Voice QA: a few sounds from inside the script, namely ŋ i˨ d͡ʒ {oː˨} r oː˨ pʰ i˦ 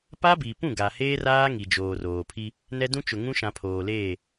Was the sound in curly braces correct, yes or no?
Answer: yes